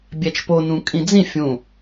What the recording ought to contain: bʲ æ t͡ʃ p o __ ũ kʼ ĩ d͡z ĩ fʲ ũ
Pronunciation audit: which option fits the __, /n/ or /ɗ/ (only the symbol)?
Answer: n